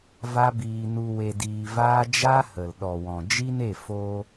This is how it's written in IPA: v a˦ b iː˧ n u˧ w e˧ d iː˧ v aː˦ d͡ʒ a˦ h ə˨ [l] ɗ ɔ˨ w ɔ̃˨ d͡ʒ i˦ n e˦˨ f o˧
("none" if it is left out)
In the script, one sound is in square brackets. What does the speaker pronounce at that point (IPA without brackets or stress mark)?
l